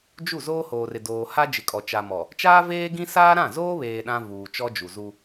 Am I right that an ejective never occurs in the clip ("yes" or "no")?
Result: no